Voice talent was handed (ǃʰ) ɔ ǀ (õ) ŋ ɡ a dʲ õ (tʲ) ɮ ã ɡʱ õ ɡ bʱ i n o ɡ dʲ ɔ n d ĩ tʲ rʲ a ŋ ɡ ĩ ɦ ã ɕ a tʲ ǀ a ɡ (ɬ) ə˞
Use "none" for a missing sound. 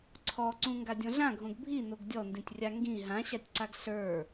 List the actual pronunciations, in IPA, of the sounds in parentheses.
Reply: ǀʰ, ũ, none, ɬ

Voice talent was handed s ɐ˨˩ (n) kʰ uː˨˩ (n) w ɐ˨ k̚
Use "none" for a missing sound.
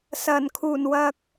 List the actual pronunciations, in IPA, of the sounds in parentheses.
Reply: n, n

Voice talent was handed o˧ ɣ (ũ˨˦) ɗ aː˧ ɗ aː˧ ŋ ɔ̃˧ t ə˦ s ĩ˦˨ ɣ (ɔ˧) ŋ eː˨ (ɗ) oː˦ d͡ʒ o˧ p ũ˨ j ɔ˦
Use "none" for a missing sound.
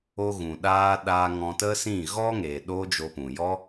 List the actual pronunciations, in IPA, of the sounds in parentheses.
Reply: ũ˨, ɔ˧, ɗ

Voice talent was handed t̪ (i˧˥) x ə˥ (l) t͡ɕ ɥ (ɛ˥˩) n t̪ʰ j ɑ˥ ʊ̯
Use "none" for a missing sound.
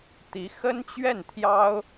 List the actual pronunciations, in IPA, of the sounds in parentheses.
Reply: i˧˥, n, ɛ˥˩

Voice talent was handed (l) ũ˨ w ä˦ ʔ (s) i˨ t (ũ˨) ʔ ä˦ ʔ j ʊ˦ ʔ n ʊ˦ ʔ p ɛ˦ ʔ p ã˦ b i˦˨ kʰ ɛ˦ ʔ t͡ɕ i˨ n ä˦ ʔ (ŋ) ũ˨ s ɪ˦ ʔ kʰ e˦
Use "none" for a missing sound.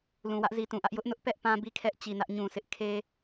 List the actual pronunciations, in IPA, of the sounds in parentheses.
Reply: l, z, ũ˨, ɲ

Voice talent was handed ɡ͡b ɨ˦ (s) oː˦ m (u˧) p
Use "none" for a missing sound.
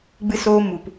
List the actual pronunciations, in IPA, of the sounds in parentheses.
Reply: s, u˧

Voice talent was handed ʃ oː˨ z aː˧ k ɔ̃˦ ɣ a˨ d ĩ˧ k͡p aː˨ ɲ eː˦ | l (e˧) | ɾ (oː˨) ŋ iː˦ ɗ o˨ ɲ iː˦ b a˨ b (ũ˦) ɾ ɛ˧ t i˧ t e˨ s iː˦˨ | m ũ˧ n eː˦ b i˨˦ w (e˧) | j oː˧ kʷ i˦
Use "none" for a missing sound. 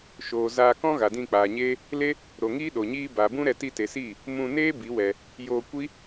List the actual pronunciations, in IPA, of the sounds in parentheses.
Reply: e˦, o˨, ũ˦, ɛ˧

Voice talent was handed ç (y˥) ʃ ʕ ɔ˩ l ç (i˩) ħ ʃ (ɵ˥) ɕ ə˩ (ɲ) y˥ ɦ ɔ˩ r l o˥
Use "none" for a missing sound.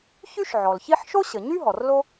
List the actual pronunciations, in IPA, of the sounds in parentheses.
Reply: y˥, i˥, o˥, ɲ

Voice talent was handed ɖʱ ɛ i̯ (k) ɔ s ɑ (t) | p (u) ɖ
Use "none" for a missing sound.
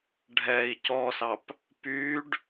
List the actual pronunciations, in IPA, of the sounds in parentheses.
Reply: c, p, y

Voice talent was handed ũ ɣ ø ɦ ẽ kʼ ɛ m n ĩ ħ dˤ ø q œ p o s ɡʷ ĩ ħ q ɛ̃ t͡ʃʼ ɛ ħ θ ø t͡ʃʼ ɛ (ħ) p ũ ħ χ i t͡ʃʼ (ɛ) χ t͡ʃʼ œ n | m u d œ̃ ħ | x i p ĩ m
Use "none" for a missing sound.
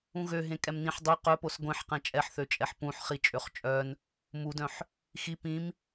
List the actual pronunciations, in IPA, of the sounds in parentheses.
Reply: ħ, ø

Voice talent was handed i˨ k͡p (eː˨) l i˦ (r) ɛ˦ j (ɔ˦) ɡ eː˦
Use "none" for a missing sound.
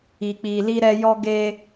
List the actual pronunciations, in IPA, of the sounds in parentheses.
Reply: iː˨, ɾ, ɔ˦

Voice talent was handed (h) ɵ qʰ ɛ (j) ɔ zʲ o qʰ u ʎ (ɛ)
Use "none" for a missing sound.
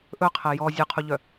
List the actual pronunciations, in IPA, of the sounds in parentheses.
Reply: ʔ, j, œ

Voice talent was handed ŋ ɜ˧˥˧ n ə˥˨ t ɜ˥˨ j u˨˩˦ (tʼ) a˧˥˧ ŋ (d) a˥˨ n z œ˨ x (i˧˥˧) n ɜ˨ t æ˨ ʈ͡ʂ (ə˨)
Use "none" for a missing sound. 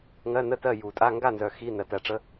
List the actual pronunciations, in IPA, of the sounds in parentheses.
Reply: tʼ, ɡ, i˧˥˧, ə˧˥˧

